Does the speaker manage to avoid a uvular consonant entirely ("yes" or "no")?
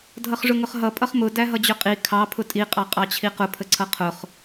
no